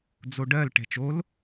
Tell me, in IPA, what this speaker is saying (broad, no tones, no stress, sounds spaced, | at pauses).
d͡z o ɖ ɜ l ʈ ɛ̤ t͡ʃ o l